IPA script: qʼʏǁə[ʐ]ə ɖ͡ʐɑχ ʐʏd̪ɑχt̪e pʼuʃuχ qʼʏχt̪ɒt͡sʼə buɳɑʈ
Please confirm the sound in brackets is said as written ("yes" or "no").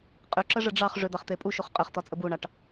yes